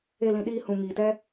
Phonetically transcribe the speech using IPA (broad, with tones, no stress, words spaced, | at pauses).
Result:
e˦˨lĩ˧ɗiː˦ hũ˧ ŋiː˨tɛ˦